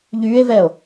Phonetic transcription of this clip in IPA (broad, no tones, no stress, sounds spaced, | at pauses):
ʎ yː e̯ v ɛː o̯